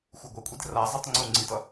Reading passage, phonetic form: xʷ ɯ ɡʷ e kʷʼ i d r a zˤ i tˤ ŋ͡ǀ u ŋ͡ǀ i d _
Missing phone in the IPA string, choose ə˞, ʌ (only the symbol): ʌ